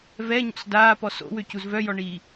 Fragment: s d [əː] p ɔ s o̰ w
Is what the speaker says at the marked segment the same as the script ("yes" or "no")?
no